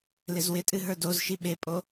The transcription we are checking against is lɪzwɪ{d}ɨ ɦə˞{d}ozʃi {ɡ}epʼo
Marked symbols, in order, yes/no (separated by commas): no, yes, no